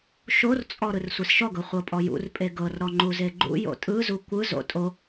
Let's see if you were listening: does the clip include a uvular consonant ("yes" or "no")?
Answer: yes